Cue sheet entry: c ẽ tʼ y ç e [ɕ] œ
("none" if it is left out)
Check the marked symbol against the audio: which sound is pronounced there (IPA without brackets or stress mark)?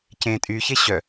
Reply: ɕ